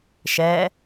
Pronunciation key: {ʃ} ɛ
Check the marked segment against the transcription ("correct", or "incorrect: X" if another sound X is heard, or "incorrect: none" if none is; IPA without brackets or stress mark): correct